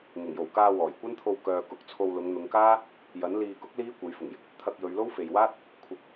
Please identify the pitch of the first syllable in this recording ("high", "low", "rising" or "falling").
low